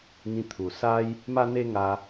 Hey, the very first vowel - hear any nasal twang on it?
yes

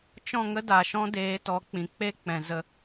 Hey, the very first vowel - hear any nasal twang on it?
yes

